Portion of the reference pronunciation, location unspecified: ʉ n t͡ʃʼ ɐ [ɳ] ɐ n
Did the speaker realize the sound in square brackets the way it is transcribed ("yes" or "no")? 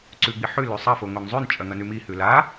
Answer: no